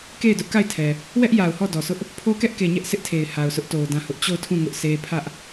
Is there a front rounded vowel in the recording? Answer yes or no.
no